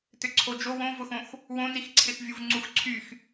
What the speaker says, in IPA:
t ʏ ǀʰ o d͡ʒ o w õ v ʊ x õ x | w õ n i x ǀʰ ɪ x vʲ u v ŋ͡ǀ u x ǀʰ y x

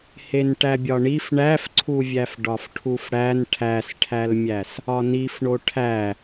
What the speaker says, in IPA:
h e n ʈ æ bʲ ɒ ɳ i f ɳ æ f ǀʰ u vʲ æ f ɖ ɒ f ʈʰ u f ɽ æ n ʈʰ æ s ʈʰ æ l mʲ æ s | ɒ n i f ɳ o ʈʰ æ

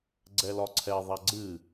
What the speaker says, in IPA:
ɡ͡ǀ ɛ l ɒ ǀʰ ɛ ðˤ a ɡ͡ǀ ɨ

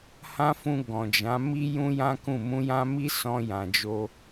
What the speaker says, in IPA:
h ã˦ f ũ˧ ɡ ɔ̃˨ d͡ʒ ã˨˦ m i˦ j ũ˦ j ã˦ k ũ˦˨ m ũ˧ j ã˦ m i˦ s ɔ̃˧ j ã˨ d͡ʒ o˧

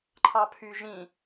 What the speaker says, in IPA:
ǃʰ ɑ pʰ y ʒ ĩ

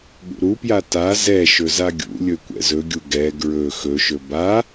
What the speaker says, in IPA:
ɠ ṵ ɾ u p j a t a z ɛ ʃ ɵ z a ɡʲ ṵ lʲ ɵ kʷ ɛ̰ z ɵ ɡʲ u ɡ ɛ ɡ ɹ ɵ x ɵ ʃ ɵ b a

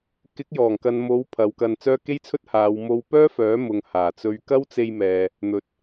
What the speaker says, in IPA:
k ɪ˨˥ k̚ j ɔː˨˩ ŋ k ɐ˨ n m o˨˧ w pʰ ɐ˨˧ w k ɐ˧ n t͡s œː˥ k e˥ j t͡sʰ ɵ˥ t̚ h aː˨˧ w m o˧ w p œː˥ f œː˨˥ m ʊ˨ ŋ h aː˨˩ t͡s ɵ˧ ɥ k ɐ˥ w t͡s e˧ j m ɛː˨ | n̪ ɵ˨˥ t̚

